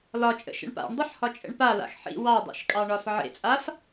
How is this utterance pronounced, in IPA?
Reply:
l ɒ t͡ʃʼ ə̰ ʃ ə̰ ɳ p a̰ ɳ dˤ ɨ ħ h ɒ t͡ʃʼ ə̰ ɳ p a l a̰ x ħ ḭ w ɑ dˤ ḛ ʃ kʼ ɑ ɳ ɒ s ʕ ḛ t͡sʼ a f

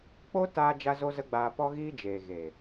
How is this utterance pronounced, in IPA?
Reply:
k͡p o˦ t aː˧ d͡ʒ a˦ z o˦ z ə˦ ɡ͡b aː˧ p ɔ˦ ɣ iː˦ d͡ʒ eː˨ ɣ eː˨

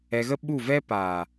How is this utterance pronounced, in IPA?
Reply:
ɛ˧ ɣ ə˦ ɓ u˦˨ v ɛ˦ p aː˨

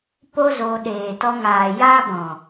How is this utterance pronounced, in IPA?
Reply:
p o˦ z oː˧ ɗ eː˨ t ɔ˧ ŋ aː˨ j aː˦ b ɔ̃˨

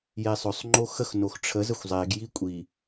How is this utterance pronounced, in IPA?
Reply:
j e sˤ ɵ sˤ ŋ͡ǃ o x ə x n o x ʈ͡ʂʰ ə z ə xʷ zˤ e ɡ j i kʷʼ i

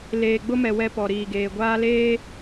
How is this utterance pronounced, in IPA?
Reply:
l eː˨ ɡ͡b ʊ˦ m ɛ˨ w ɛ˦ p ɔ˨ ɾ iː˨ ɡ eː˨ ɡʷ aː˦ l eː˦

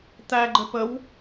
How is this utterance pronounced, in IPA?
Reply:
t̪ æ ɡ͡ǃ ɘ p ə w

